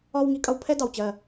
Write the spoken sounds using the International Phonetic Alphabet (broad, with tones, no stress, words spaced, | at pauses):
ɒ˥w ŋi˩˥kʼʌ˧wpʰɛ˥ dɑ˩wt͡ɕɜ˧˩